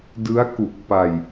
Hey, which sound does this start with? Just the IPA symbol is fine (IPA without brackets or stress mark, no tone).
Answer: d